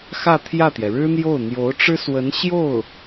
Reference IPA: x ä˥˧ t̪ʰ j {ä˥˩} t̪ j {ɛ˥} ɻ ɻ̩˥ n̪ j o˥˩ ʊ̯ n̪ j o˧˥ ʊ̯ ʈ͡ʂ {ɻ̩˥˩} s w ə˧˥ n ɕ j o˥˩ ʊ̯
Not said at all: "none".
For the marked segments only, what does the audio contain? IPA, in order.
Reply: ä˥˩, ɛ˩, ɻ̩˥

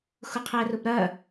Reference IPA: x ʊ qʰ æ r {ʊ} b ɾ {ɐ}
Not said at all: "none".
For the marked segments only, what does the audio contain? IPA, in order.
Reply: ʊ, ɐ

